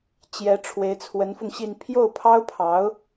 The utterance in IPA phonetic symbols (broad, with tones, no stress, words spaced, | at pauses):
t͡ɕjɛ˧˥ ʈ͡ʂʰwe˧˥ɪ̯t͡sʰwə˧˥nfʊ˧ŋɕi˥˧n pʰjo˥˩ʊ̯pʰɑ˥ʊ̯pʰɑ˧˥ʊ̯